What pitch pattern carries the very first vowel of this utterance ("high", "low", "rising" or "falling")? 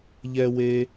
high